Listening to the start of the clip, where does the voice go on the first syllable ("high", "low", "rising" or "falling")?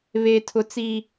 high